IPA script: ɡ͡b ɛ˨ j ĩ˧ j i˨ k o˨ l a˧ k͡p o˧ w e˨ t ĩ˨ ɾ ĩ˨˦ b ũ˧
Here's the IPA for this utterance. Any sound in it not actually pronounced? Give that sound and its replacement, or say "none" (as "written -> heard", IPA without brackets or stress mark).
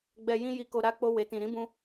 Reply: l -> ɾ